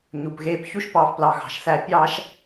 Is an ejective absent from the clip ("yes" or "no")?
yes